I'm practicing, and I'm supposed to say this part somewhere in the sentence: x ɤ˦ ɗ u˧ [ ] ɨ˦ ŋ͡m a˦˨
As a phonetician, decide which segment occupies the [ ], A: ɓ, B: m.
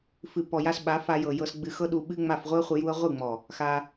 A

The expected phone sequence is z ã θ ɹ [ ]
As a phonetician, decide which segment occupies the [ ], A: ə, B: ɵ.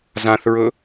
B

